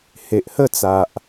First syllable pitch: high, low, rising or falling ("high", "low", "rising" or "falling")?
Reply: low